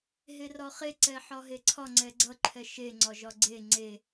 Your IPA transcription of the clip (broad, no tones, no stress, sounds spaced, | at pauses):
ɦ e r ɒ χ e ǀ ɛ ħ ɒ ɦ e ǀʰ ɒ ŋ͡ǀ ɛ ɡ͡ǀ ʌ ǃʰ ɛ ʃ e ŋ͡ǀ ɒ ʒ ɒ ɡ͡ǀ e ŋ͡ǀ e